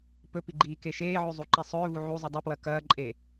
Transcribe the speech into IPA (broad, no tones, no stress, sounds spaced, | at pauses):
p ɵ p i ɡ͡ǃ iː k e ʃ eː ʕ ʉ zˤ u ǃ i sˤ ɵː v u ʕ u zˤ ɨ dˤ ɐ p w ɐ k ɐː ǃʼ e